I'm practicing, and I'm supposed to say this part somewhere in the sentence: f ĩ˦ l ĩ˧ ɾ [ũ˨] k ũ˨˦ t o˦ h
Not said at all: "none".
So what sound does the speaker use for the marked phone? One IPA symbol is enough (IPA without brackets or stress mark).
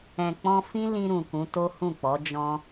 ũ˨